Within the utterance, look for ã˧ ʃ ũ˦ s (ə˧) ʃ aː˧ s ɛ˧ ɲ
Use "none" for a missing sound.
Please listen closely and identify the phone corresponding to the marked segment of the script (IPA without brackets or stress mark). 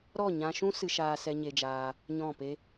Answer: ɨ˧